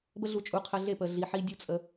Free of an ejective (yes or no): no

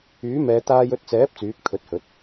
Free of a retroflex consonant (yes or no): yes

